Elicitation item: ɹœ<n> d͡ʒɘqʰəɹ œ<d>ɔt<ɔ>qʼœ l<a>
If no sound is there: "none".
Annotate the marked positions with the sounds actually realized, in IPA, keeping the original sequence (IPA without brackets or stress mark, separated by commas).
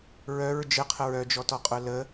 ɹ, d͡ʒ, ɔ, ə